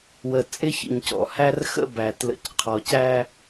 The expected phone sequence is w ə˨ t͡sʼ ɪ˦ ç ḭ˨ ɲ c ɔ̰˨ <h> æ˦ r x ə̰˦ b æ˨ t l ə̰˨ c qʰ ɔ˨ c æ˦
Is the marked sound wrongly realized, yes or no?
no